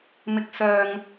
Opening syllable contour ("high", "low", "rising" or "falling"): high